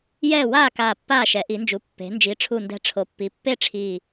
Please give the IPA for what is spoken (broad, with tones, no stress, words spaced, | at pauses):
jɛː˦˨waː˦˨kaː˨˩ pːaː˦˨ʃɛ˩˧ʔi˩˧nd͡ʒu˩˧ pːe̤˩˧ nd͡ʒi˩˧ʈ͡ʂʰu˨˩ndɛ̤˨˩ ʈ͡ʂʰo˩˧pːi˩˧pːe˦˨ʈ͡ʂʰiː˨˩